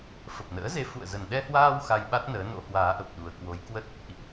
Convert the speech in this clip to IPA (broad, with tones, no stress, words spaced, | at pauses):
fə˨˩p̚nə̰ː˧˥ze˨˦ fṵ˧˨ə̯zə˨˩n ɗɛ˧hwaː˧w xa˧jɓa˦˥t̚ nəː˨˦no̰˧˥ hwaː˨˦ʔə˨˩p̚ ɗu˨˩ə̯kwo˨˦jkwə˦˥t̚ | ʔḭ˧˨ʔ